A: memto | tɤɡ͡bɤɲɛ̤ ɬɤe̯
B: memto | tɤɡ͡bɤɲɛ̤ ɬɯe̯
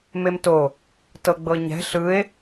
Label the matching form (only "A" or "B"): B